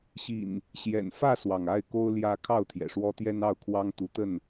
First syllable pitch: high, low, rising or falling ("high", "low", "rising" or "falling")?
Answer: low